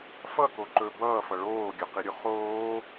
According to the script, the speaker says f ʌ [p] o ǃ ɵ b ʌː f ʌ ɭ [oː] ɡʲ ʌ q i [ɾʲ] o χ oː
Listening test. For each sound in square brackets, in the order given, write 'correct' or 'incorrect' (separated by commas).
incorrect, correct, correct